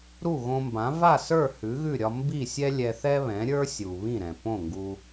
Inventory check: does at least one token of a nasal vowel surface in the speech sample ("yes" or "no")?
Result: yes